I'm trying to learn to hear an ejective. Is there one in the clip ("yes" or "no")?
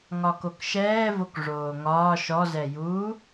no